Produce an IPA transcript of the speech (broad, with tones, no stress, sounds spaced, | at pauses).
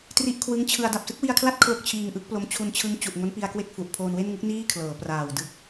t r i˦˥ ʔ kʰ w ɯ˦˥ ŋ t͡ɕʰ ɯ˧ a̯ d a˨˩ p̚ s ɯ˦˥ k̚ w i˧ a̯ kʰ l a˥˩ t̚ kʰ l o˥˩ k̚ t͡ɕʰ iː˧ ŋ ʔ ɯ˦˥ k̚ p l o˧ m t͡ɕʰ u˧ n t͡ɕʰ ɯ˦˥ ŋ t͡ɕ u˨˩ ʔ ŋ o˦˥ n p i˧ a̯ k w e˥˩ k̚ f u˨˩ ʔ pʰ oː˧ n w e˥˩ n ŋ ɯ˦˥ k̚ n iː˥˩ kʰ l ɤː˩˦ p r aː˨˩ w d ɯ˦˥ k̚